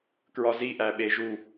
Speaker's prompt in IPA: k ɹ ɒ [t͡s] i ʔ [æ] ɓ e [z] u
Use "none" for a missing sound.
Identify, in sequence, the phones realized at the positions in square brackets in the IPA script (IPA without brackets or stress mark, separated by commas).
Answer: z, æ, ʒ